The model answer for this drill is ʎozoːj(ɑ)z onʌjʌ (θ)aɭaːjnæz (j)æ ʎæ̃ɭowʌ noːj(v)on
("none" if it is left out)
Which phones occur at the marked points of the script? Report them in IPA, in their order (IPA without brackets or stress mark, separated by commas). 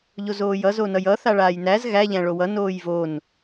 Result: ʌ, θ, ɣ, v